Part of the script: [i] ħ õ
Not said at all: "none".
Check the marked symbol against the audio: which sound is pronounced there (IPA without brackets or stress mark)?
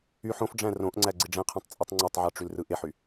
y